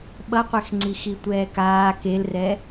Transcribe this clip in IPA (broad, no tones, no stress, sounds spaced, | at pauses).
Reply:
ɓ ʌ qʷ ɛ x ŋ͡ǀ i x i tʷ ɛː k aː k e l r ɛ